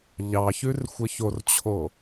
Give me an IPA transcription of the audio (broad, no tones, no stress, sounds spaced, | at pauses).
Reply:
ʎ ɑ ç ʉ r xʷ ə ç o r t͡ɕʰ o